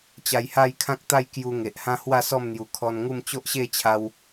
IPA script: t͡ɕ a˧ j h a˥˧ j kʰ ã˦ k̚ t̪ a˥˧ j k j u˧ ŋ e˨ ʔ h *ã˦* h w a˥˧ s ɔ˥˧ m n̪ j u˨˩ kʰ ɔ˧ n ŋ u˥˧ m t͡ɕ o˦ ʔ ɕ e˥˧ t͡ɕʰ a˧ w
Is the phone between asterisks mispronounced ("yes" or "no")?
no